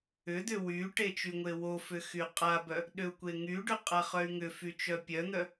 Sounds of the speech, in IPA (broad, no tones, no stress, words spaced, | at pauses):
ʏd̪ʏ wyʈe t͡ʃyŋʷewofʏ xyqʼabœ | ɗʏu̯kʷeŋyɖʏ qʼaχœy̯ŋʏfy t͡ʃœpʲœn̪œ